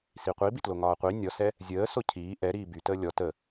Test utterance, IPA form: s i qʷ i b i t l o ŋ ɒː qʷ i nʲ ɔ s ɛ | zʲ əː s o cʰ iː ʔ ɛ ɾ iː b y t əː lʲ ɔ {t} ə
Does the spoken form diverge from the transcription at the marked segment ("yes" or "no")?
no